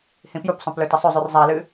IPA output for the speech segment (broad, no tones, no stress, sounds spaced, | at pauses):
h ĩ p j u p sˤ õ p l ɵ t ɐ sˤ ɵ zˤ ʉ r zˤ a l ɨ